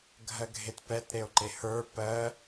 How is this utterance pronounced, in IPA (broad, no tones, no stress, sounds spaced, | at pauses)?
ɡʱ ɜ ɡʱ e t p ɛ t ɾ e o̯ ǃ e h ə˞ p ɜ